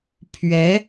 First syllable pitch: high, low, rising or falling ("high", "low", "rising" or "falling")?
rising